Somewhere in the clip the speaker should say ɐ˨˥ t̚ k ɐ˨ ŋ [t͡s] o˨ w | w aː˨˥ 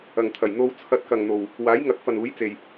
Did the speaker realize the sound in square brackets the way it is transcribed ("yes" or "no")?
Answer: no